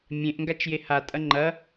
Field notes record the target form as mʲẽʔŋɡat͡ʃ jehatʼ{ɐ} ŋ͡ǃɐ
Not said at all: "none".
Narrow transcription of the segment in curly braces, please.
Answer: ɐ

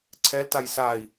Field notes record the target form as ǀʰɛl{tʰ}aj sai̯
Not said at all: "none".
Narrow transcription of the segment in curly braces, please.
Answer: t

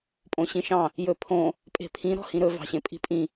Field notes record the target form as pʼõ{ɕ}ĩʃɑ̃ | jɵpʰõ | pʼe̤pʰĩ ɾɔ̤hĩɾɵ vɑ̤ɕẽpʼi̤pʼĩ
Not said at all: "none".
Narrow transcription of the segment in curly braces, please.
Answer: ɕ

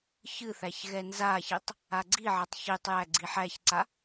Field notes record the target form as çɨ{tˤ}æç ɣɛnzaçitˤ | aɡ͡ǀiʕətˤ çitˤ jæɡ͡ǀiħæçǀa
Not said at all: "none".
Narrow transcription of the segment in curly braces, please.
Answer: θ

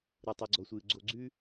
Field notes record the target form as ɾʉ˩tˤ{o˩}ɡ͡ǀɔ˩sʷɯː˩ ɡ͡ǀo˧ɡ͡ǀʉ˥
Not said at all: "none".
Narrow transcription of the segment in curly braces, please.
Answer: u˩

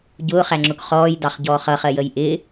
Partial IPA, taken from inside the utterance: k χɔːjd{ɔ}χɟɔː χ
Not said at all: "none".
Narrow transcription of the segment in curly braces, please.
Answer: ɑ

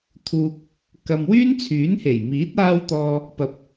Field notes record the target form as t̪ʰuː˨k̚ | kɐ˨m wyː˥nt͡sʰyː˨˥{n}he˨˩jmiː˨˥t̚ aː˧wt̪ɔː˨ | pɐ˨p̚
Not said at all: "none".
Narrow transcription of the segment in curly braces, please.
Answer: n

